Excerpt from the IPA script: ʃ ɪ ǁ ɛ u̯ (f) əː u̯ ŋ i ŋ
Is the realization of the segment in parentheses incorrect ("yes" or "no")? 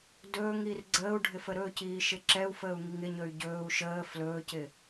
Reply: no